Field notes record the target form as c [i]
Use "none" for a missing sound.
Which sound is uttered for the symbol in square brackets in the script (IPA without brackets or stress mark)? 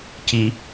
i